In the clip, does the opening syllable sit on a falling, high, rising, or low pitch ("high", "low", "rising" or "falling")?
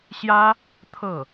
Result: high